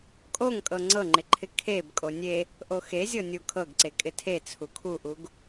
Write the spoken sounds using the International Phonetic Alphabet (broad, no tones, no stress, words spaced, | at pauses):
kʼoŋkʼɤ ŋ͡ǀɤŋ͡ǃɪǃʰɪ kʰeb kʼonʲe | ʔoxezʲɤ nʲukʰɤɡǀe kʼɪtʰet͡sʰu kʰuʔuɡ